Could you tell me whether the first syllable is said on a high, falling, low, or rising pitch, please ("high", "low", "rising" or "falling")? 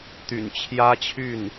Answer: low